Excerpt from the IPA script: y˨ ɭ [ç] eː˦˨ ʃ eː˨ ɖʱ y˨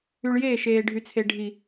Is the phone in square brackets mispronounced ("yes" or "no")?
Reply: yes